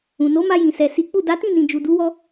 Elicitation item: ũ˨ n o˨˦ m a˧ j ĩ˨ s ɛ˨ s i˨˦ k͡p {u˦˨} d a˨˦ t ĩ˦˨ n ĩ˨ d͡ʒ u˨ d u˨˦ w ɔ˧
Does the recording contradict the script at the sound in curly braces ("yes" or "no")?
no